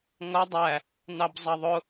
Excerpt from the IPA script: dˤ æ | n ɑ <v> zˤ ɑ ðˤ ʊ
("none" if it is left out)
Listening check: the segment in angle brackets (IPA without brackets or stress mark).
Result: b